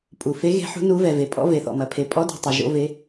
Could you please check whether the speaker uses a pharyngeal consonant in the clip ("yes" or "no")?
yes